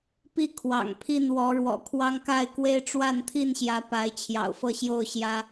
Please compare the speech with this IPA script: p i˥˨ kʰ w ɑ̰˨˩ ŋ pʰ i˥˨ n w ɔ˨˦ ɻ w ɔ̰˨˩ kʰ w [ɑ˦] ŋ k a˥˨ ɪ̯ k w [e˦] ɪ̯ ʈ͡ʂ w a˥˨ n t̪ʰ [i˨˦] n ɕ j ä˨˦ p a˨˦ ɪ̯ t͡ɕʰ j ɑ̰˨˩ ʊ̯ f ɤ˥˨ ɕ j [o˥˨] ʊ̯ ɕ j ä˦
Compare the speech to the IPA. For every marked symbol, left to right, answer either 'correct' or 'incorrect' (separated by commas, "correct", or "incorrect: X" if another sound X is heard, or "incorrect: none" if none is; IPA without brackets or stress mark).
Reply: correct, correct, incorrect: i˥˨, correct